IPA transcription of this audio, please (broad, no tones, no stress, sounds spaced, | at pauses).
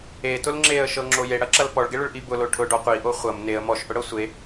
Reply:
e t ʊ l ŋ͡ǁ e ə̯ ʃ ɤ ŋ͡ǁ o j e ɽ ɐ ǁ ɐ l p ɔ ɭ ɡ e ɭ ʊ ɭ ʔ i b ʊ l o ʈʰ ʊ ɖ ɔ qʷ i ʔ o χʷ ɐ m n e ə̯ m ɔ ʃ ʔ ʊ ɽ ɤ sʷ e